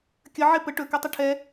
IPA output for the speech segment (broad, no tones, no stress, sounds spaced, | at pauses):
kʲ ə ʕ e p ə ʈ ɵ k ɛ tˤ ə ʈʰ ɛ